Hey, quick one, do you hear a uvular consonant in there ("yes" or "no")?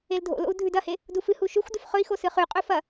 yes